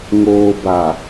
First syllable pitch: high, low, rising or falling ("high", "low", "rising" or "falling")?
low